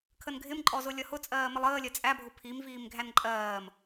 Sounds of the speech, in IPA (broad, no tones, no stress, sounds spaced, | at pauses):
kʰ ə n ɡʱ ɪ m ǃʼ ɔ z ʊ lʲ ʌ h ʊ t͡sʼ ɜː m ɪ lˠ əː lʲ ɜ t͡sʼ æ bʱ ʊ pʰ i m v iː m ɡʱ æ n ǃʼ ɜː m